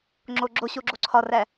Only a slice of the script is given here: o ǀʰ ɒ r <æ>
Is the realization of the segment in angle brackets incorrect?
no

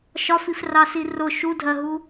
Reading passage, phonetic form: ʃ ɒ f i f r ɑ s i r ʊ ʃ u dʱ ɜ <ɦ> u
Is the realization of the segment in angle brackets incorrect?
no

